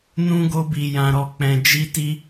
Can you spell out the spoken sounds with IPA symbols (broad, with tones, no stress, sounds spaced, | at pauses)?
n ũ˦ ɡ o˦ b i˧ j ã˧ ɾ ɔ˧ k͡p ɛ̃˧ d͡ʒ i˦ t i˦